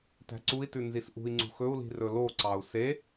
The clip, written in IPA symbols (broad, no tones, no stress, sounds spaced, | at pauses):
t æ̤ ǀ u i̯ t ʉ n z i s ʔ ṳ i̯ ŋ͡ǀ ṳ x ɵ u̯ l i̤ r ɵ l o ǀ ɑ u̯ s e